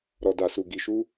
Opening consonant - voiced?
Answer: yes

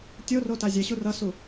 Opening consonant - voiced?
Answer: no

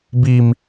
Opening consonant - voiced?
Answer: yes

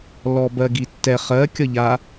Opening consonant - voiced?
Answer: yes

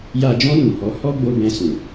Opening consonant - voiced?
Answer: yes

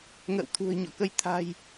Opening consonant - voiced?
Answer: yes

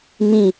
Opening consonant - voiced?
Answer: yes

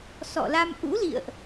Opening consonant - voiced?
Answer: no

